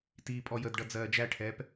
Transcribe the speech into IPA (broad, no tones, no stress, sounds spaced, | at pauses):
t iː pʼ ɔ j ə d ɖ ʌ d͡z ɜː d͡ʒ æ ʈʰ ɛː p